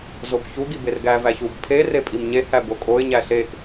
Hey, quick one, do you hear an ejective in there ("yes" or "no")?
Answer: yes